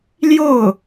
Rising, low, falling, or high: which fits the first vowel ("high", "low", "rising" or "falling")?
falling